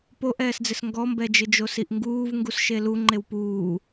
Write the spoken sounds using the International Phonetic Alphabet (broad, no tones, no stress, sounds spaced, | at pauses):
p o ʔ ɛː s d͡z ɪ s ŋ ɡ ɔ m b ɛ d͡ʒ ɪ d͡ʒ o s i ʔ ŋ ɡ uː v ŋ ɡ u s ʃ e l u ŋ͡ǃ e w p uː